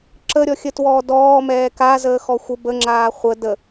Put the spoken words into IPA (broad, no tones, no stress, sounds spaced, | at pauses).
ǁ ə ɾʲ ɔ xʲ ə t w ɔː d ɔː m ɛː k a z əː x ɔ xʷ ə b ə ŋ͡ǁ aː χʷ ə d ə